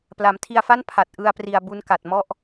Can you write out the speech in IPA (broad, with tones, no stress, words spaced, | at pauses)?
pla˩˦mtʰi˧a̯fa˥˩n pʰa˨˩t̚ ʔɯ˧a̯pri˨˩a̯bu˧n ka˨˩t̚mɔ˥˩ʔ